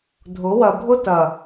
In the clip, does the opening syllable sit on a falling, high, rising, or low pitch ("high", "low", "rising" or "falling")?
rising